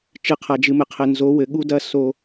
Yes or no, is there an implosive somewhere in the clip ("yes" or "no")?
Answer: yes